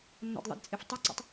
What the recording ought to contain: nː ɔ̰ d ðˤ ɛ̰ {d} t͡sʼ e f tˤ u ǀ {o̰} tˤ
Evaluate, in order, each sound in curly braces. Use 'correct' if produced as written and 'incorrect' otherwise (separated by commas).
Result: correct, correct